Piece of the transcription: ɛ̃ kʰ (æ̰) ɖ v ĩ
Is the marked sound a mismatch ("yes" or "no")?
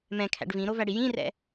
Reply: no